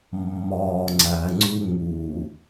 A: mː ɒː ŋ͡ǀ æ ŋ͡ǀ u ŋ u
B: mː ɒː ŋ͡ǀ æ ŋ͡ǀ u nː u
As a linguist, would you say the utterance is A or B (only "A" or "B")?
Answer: A